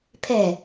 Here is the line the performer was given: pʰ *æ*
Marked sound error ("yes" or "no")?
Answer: yes